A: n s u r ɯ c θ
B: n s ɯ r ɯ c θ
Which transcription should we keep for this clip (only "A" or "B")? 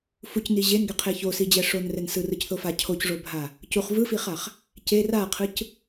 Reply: B